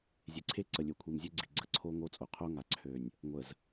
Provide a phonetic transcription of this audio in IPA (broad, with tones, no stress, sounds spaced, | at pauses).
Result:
zʲ e˨ ǀʰ e˦ ǀ ə˨ lʲ ø˨ kʷʰ i˨ m zʲ ø˦ ɡ͡ǀ i˨ ɡ͡ǀ ə˦ ǀʰ o˦ ŋ o˦ t͡sʼ o˨ qʰ o˦ ŋ a˨ ǀʰ ø˨ nʲ | ŋʷ ə˨ z